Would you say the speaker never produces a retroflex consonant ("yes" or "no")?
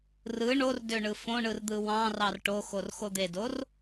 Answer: no